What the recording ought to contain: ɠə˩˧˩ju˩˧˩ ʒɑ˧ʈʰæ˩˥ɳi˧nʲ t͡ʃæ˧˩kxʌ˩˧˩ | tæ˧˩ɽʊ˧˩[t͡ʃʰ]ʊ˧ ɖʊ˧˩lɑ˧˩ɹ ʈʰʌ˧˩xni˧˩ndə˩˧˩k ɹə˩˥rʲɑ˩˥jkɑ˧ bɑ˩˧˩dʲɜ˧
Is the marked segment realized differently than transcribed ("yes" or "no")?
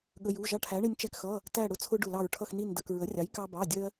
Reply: yes